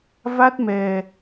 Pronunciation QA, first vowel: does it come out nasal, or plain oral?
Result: oral